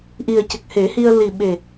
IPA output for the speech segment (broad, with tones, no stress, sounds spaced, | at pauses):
ʔ i˨˩ ə̯ c ə˨˩ k̚ h e˨˩˦ h i˧ ə̯ l i˨˩ ɓ e˨˩